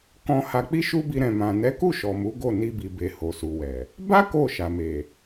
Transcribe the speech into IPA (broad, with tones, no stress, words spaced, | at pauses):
kɔ̃˧ha˧ k͡pi˦ʃu˦bi˧ ɾɛ̃˨mã˨ nɛ˨˦ku˦˨ ʃɔ˨mu˨˦ ɡo˦˨ni˧bi˨be˨ ho˨su˨wɛ˨ | ba˦ ko˦˨ʃa˨me˨